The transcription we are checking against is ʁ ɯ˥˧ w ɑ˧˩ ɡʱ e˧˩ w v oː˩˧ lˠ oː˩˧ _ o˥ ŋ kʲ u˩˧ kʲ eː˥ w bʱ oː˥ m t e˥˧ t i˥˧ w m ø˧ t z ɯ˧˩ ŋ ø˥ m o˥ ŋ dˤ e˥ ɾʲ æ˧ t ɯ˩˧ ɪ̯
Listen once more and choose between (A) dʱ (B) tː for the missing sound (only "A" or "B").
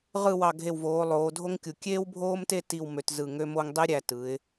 A